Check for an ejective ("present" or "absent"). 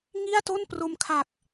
absent